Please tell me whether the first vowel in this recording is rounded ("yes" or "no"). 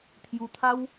yes